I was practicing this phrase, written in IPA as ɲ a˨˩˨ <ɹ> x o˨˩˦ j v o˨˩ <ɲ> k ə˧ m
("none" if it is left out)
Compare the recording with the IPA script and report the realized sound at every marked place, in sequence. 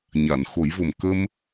n, m

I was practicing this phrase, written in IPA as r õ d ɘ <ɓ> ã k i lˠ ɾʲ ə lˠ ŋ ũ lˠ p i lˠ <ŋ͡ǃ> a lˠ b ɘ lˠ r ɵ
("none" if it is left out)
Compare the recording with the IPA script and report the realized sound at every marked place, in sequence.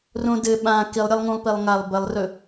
ɓ, ŋ

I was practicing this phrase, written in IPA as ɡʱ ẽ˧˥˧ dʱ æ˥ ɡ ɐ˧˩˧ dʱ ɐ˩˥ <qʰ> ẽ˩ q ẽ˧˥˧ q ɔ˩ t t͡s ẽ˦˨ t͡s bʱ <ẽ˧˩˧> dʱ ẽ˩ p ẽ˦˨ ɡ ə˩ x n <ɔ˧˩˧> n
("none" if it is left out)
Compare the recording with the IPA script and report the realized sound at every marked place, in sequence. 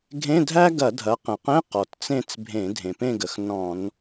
q, ẽ˧˩˧, ɔ̃˧˩˧

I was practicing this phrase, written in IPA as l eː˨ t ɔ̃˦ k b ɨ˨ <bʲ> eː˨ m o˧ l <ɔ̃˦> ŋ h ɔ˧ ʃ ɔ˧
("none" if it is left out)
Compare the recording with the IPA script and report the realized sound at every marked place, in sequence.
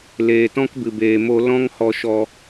b, ɔ̃˦

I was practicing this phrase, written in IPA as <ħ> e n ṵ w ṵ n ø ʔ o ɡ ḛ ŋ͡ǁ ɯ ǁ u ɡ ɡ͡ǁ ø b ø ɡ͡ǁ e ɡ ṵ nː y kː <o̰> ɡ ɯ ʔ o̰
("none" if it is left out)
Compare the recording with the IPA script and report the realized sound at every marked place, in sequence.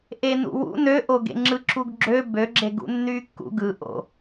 ʔ, ṵ

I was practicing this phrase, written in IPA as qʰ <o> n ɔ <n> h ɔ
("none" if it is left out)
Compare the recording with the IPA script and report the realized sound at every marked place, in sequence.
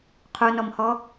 o, m

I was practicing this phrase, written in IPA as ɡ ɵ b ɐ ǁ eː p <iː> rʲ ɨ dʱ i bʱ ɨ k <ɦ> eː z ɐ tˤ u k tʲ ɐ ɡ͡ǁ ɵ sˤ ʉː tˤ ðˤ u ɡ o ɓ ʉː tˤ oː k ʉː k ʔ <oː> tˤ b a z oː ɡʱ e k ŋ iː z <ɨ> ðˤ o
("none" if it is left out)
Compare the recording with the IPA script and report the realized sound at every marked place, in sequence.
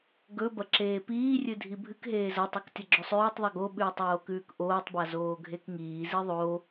iː, ɦ, oː, i

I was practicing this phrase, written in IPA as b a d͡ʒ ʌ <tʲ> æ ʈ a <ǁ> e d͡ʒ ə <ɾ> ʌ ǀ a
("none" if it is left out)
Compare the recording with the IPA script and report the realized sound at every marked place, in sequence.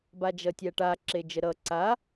tʲ, ǁ, ɾ

